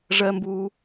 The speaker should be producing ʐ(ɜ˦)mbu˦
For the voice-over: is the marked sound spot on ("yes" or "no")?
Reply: yes